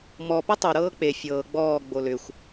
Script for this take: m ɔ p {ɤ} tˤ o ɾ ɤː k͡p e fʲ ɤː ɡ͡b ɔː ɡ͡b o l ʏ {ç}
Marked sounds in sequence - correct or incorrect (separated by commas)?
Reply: correct, incorrect